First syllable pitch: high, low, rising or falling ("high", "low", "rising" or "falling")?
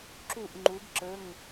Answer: falling